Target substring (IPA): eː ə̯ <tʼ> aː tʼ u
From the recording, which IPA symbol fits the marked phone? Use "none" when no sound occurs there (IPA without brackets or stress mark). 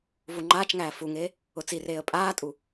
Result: pʼ